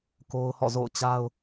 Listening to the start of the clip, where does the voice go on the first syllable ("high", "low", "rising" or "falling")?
high